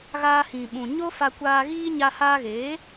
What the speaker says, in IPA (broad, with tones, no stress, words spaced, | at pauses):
ɣaː˧hĩ˨ɓũ˨ ɲo˦fa˧kʷaː˧ɣiː˦ ɲa˧haː˧ɣeː˨˦